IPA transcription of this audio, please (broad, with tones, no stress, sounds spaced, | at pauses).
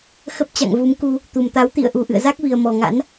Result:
x ə˦˥ p̚ t͡ɕ a̰˧˨ ŋ v u˨˦ m k u˧ | t̪ u˨˩ m t̪ a˨˦ w t̪ ḭ˧˨ ə̯ ʔ u˨˩ ʔ ɨ̰˧˨ ə̯ z a˦˥ k̚ v i˨˩ ə̯ m ɔ˨˩ ŋ a̰˧˥ n